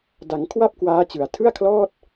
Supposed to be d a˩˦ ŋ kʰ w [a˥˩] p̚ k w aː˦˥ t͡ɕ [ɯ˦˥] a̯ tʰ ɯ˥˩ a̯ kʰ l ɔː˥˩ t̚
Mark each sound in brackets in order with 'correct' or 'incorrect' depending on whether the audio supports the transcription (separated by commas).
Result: correct, incorrect